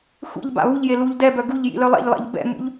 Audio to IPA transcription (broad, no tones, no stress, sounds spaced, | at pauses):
xʷ ḭ ʎ b a̰ β u ʎ j e l u ʎ d ɛ b œ ɡ u ʎ j ḭ l œ lˠ ɛ̰ ʎ lˠ ɛ̰ ʎ b ɛ̰ m ṵ ʎ